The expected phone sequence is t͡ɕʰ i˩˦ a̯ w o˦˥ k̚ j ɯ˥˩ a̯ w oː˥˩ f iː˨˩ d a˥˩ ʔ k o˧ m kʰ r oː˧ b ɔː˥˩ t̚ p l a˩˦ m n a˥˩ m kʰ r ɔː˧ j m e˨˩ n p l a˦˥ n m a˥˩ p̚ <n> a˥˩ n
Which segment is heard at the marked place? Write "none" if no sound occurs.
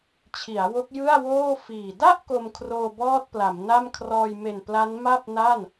n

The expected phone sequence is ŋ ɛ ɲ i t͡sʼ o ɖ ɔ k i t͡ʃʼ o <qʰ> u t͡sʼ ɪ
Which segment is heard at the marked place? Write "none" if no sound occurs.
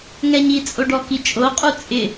qʼ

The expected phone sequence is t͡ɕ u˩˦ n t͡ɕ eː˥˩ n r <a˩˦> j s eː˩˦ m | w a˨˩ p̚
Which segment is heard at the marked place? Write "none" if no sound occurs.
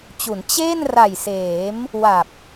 a˨˩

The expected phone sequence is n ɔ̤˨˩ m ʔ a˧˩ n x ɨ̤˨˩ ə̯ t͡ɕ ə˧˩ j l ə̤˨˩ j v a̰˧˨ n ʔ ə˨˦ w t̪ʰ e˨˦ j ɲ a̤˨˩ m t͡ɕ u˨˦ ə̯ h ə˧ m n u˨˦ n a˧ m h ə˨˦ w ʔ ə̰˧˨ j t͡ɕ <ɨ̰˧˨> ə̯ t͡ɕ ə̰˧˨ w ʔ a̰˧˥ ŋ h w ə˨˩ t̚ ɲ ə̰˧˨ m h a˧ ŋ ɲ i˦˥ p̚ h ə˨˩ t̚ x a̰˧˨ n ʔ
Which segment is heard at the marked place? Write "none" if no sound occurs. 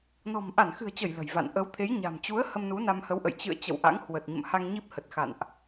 ɨ̰˧˨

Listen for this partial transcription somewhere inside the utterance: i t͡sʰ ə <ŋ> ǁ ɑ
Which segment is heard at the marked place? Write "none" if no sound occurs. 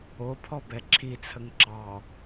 ŋ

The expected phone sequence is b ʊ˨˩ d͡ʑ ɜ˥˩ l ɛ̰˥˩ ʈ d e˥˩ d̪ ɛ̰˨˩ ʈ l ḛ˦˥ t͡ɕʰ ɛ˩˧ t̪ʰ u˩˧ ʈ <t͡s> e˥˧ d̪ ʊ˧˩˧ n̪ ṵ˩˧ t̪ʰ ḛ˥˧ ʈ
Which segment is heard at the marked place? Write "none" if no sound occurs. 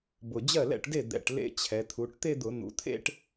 t̪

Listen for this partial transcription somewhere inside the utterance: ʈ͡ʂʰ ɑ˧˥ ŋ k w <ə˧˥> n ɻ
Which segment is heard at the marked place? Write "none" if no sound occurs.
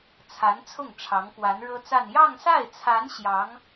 a˧˥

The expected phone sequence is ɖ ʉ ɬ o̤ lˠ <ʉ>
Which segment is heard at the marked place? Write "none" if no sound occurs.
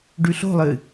ɨ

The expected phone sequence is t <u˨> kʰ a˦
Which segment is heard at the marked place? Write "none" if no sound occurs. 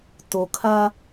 o˨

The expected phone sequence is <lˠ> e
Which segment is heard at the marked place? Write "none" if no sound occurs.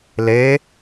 l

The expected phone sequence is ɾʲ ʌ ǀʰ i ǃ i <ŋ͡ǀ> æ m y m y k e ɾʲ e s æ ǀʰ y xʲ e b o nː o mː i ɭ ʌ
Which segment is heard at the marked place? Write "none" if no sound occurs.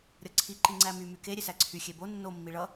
ŋ͡ǀ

